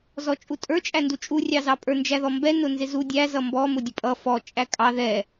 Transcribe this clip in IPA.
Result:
z ɔ t͡ʃʼ u tʼ ə˞ t͡ʃʼ æ n d u t͡ʃʼ u rʲ ɑ z ɑ pʼ ə˞ n d͡ʒ æ ð ɔ m b ɛ n ʊ n z ɪ z u dʲ æ z ʌ m b ɔ m ʊ dʲ ə pʼ ʌ f ɔ t͡ʃʼ æ kʼ ɑ ð ɛ

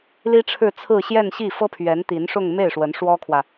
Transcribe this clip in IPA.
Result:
l i˥ ʈ͡ʂʰ ɻ̩˥˧ t͡sʰ ɹ̩˥˧ ɕ j ɛ˥˧ n ɕ i˥˩ f ɤ˥ pʰ ɥ ɛ˧˥ n t̪ i˧˥ n ʂ ʊ˥˧ ŋ m e˥˩ ɪ̯ ʂ w ə˧˥ n ʂ w ɔ˥ kʰ w ä˨

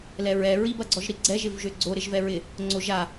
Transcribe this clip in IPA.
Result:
l ɛ ɹ ɛ ɹ i b ɐ ɡ͡ǀ ɔ ʒ ɾ i ɡ͡ǀ ɛ ʒ ɪ v ʒ ø ɡ͡ǀ o ɾ ɪ ʒ v ɛ ɹ ɪ | ŋ͡ǀ o ʒ a

